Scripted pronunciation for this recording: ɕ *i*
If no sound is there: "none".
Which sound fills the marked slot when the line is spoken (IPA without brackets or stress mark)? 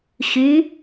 y